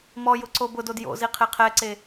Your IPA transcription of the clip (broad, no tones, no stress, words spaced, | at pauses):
mɔjʊ ǀobʊdod jo̰zi qʰeqʰɛǀe